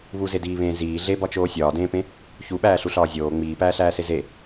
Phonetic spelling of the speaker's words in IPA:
β u z e d iː β ẽː z iː ɮ e b ɒ t͡ʃ oː sʲ ɒː d ẽː p ẽ | ç u ɓ æː ɬ u ɬ ɒː zʲ oː ŋ͡m iː p æː ɬ æː s e z e

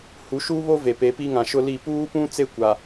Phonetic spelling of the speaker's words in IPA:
h u˨˦ ʃ uː˦ β o˦ v e˨ p e˨˦ p i˦ ŋ ã˨ ʃ ʊ˦ l i˦˨ p uː˦ p ũ˦ t͡s e˦˨ kʷ a˨

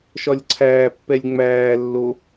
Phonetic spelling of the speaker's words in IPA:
ʃ ɒ lʲ ǀʰ æː pː ɛ lʲ ŋ͡m æː lː o

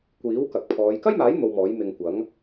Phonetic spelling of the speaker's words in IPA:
kʷ iː˨˥ w k ɐ˨ k̚ pʰ ɔː˨˧ j k ɐ˥ j m aː˨˥ j n̪ o˨ w m ɔː˨˥ j m ɪ˧ ŋ kʷ ɐ˨˥ ŋ

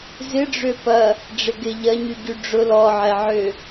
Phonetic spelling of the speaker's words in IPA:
z ɪ ɖ͡ʐ ø p ɐ | ɖ͡ʐ ɪ ɡ ɪ ʎ ɐ ɲ y ɟ y ɖ͡ʐ ʊ l ɔ ʕ ɛ ʕ ø

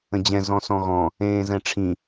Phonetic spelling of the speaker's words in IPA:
ə̃ d͡ʑ ɛ̃ z ɔ̃ s ɔ̃ ɣ ɔ̃ | ẽː z ɛ̃ ʈ͡ʂʰ ĩ

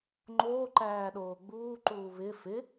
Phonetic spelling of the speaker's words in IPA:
ŋ͡ǃ oː ǃ æː ɗ oː ɡ͡b uː ǃ uː β ɪ f ɪ

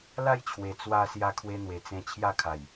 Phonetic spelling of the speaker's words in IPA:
l a˥˧ j t͡ɕʰ w e˨˩ t͡s w a˧ s j a˧ kʰ w e˧ n̪ w e˨˩ t͡s ẽ˧ t͡ɕʰ j a˥˧ kʰ a˨˩ j

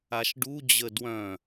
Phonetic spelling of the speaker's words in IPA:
a ʃ ɖ u d͡ʑ ə d w œ̃

